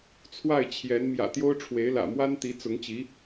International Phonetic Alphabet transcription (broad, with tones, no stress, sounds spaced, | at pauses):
t͡sʰ w a˥˩ ɪ̯ t͡ɕʰ j ɛ˧˥ n m j ä̰˨˩ t̪ j o˥ ʊ̯ ʈ͡ʂʰ w e˧˥ ɪ̯ l ä̰˨˩ m w a˥ n t̪ i˧˥ t͡s ʊ˧˥ ŋ t͡ɕ i˧˥